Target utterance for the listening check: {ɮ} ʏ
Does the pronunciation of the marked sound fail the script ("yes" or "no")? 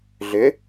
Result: no